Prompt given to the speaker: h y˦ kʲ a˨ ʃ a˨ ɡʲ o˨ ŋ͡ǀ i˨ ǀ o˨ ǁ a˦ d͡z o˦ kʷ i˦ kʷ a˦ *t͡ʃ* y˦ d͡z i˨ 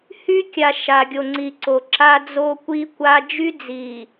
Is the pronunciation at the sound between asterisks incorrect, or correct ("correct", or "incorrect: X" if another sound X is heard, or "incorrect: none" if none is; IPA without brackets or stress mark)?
incorrect: d͡ʒ